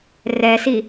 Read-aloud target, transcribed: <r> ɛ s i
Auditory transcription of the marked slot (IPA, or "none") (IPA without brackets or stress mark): r